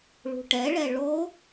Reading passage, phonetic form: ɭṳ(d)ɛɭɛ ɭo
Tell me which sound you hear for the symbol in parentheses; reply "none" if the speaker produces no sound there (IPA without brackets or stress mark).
ʈ